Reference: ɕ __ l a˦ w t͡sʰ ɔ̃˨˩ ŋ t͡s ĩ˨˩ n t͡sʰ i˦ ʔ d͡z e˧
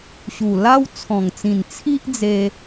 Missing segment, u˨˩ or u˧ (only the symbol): u˨˩